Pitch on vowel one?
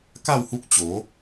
falling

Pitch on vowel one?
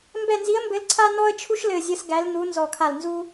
falling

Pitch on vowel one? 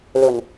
low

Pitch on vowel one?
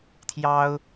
high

